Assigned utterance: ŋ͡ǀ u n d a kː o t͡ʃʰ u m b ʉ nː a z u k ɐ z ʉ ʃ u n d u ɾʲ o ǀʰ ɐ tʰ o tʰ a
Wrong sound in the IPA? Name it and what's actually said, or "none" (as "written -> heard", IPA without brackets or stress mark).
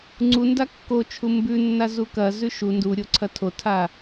none